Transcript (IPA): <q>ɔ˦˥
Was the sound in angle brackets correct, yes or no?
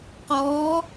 yes